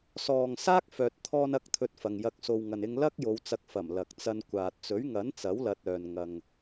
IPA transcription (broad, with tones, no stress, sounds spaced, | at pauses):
s ɔː˨ ŋ s aː˥ k̚ f œː˨ t̚ t̪ʰ ɔː˧ n ɐ˧ k̚ t̪ʰ ɵ˧ t̚ f ɐ˨ ŋ j ɐ˧ k̚ s o˨ w ŋ ɐ˨ n ɪ˧ ŋ l ɐ˥ k̚ j o˨˧ w t͡s ɐ˧ k̚ f ɐ˨˩ m l ɐ˨ k̚ t͡s ɐ˧ n kʷ aː˨ t̚ t͡s ɵ˨˥ ɥ ŋ ɐ˨˥ n t͡s ɐ˨˥ w l ɐ˧ t̚ œː˨ n ŋ ɐ˨ ŋ